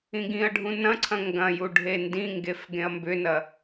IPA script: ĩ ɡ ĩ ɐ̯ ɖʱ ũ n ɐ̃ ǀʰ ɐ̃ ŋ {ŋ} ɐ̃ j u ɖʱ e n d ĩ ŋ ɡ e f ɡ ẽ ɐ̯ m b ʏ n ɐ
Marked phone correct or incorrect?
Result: incorrect